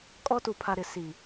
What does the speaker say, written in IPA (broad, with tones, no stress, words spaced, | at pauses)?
kʼɔ˦tu˨pʰa˨ ɾɪ˨si˨